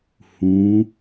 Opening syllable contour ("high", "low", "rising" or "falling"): rising